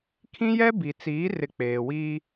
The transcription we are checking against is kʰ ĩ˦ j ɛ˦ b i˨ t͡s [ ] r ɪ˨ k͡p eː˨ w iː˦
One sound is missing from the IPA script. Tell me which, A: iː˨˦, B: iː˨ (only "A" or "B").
A